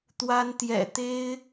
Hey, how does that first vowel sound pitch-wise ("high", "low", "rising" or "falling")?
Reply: high